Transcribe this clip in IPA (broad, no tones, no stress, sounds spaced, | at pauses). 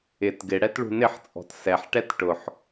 ɪ t ɡ ɪ ɽ ɛ t ɭ ṳ n ɪ ħ t͡sʼ ɔ̤ t s ɛ ħ ʈ ɛ t ʈ ʊ ħ